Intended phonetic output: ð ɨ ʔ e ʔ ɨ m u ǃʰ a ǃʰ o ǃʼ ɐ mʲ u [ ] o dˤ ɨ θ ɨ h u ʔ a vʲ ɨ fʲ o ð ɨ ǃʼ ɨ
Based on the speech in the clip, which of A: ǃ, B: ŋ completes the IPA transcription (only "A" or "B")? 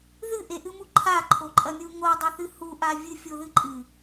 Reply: B